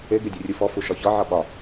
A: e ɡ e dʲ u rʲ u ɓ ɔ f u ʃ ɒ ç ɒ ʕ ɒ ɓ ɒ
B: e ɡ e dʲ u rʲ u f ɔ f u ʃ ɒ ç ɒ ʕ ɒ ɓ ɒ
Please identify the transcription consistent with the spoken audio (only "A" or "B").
B